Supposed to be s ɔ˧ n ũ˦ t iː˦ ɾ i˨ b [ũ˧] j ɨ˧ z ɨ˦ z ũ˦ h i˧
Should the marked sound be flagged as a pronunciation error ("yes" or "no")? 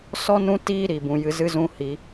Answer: yes